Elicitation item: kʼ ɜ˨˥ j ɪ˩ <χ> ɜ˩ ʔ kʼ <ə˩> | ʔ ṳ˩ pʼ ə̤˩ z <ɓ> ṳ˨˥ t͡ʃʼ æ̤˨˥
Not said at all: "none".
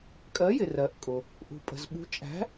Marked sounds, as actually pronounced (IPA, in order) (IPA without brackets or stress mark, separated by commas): r, ʊ˩, ɓ